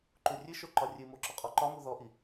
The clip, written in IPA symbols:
ǃ u rʲ ɨ ʃ o ǃ ɒ rʲ ɨ m o ǁ ɔ qʼ ɔ ǃ ɒ m u ð ɔ ʔ i

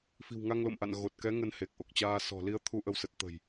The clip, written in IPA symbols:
f i̤˨˩ w ŋ a˧ ŋ l o̰˧˨ m ʔ a̰˧˨ n ɣ o˨˩ t̚ k ɛ˨˦ ŋ ə˧ n h e˨˩ k̚ ʔ o˨˩ k̚ t͡ɕ aː˧ s ɔ̤˨˩ l i˧ ə̯ t̪ʰ u˧ ʔ ə˧ w s ə˨˩ t̚ t̪ ə̤˨˩ j

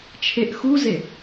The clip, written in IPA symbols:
t͡ʃʰ e ʔ x u z e

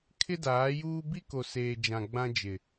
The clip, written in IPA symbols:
kʰ ɪ˦ d aː˨˦ j uː˦ b i˦ k o˨ s eː˨ d͡ʒ ã˨ ɡ͡b ã˦ d͡ʒ ɪ˨

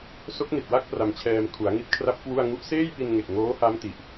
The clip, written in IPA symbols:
s o˦˥ k̚ n i˨˩ t̚ w a˥˩ k̚ p r a˧ m t͡ɕʰ ɛː˧ m kʰ u˩˦ a̯ ŋ i˦˥ t̚ kʰ r a˦˥ p̚ k w u˥˩ a̯ ŋ u˦˥ ʔ s eː˥˩ j p i˧ n ŋ e˨˩ k̚ ŋ oː˦˥ h a˦˥ m t i˨˩ ʔ

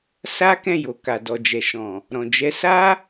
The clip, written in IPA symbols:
s a˦ k ɛ̃˦˨ j o˨ k a˨ d ɔ˨ d͡ʒ ɛ˨ ʃ ɔ̃˨ | ɾ ɔ̃˨ d͡ʒ ɛ˨˦ s a˦

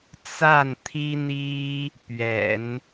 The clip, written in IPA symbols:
t͡s a˥˩ n t̪ʰ i˥ n̪ i˥ | p ɥ ɛ̰˨˩˦ n

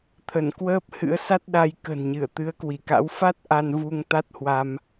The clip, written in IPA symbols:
t̪ʰ ə˧˩ n k w əː˦˥ p̚ h ɨ̰˧˥ ə̯ s a˦˥ t̚ ɗ a˧ j k ə̤˨˩ n ɲ ɨ˧˩ ə̯ t̪ ɨ˨˦ ə̯ k w i˧˩ k a̰˧˥ w f a˦˥ t̚ ʔ a˧ n v u˧ ŋ t̪ a˦˥ t̚ h w a˧ m

